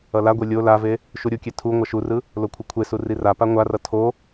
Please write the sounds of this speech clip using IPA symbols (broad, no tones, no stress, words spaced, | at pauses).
ʌlaɡʷe lʲo lave | ʃuɾʲukʲe tʰu ŋʷʌʃurɯ | lokʷʰɯkʷʰesu rirapa ŋʷarʌ tʰo